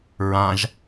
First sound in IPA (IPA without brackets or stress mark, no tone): ɹ